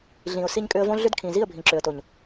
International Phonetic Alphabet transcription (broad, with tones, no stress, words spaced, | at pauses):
ɮĩ˨ʊ̯ si˧ɲkʼʏ˧ə̯võ˦ ɮʏ˦dkʰĩ˨ zi˦˨ə̯bʱĩ˨ǁʏ˨ə̯to˨ɲ